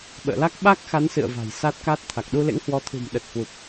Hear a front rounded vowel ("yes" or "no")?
no